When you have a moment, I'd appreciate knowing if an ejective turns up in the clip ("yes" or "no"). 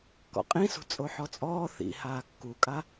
yes